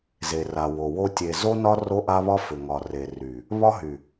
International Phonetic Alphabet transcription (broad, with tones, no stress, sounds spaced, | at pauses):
z e˨ r a˨ w o˨ w o˦ tʲ e˨ z o˦ n ɒ˦ r o˦ ʔ a˦ β ɒ˦ f ʏ˨ ŋ ɒ˨ r e˨ r y˨ | β ɒ˦ ɦ y˨